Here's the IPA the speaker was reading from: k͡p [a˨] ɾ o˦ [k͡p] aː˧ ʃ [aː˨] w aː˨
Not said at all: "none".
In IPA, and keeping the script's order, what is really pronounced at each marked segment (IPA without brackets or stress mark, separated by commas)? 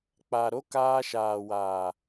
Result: a˨, k, aː˨